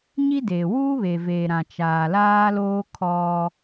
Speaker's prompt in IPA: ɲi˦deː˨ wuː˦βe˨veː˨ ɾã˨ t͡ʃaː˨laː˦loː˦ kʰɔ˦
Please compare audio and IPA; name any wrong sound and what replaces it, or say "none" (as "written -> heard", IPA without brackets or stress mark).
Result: none